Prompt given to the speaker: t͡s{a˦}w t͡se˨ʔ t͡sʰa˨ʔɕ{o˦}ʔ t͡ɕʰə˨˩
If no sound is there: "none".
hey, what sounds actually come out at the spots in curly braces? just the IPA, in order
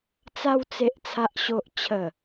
a˧, o˨

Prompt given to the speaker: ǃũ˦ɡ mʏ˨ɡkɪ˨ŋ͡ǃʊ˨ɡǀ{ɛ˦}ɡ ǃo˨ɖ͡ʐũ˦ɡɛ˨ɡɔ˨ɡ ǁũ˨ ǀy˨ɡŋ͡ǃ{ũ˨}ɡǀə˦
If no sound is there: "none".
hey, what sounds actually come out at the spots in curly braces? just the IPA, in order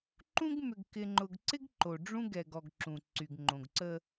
ɪ˦, õ˨

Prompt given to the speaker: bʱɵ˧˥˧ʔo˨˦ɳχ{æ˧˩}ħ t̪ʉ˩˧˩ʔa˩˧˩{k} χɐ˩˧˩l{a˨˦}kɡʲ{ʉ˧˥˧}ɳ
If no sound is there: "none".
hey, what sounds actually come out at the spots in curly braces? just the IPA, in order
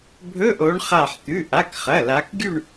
a˧˩, k, a˨˦, ʉ˥˧

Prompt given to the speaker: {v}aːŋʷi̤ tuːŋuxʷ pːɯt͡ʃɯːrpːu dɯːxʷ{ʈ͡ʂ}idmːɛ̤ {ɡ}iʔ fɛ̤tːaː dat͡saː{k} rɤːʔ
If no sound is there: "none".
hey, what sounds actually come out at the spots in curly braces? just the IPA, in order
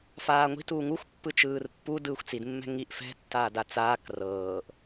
f, t͡s, ŋ, k

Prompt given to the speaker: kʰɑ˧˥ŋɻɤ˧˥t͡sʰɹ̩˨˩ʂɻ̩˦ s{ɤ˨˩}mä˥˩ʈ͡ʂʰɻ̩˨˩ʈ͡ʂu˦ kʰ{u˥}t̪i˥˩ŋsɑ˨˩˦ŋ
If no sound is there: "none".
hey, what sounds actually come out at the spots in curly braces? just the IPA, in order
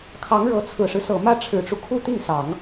ɤ˨˩, u˥

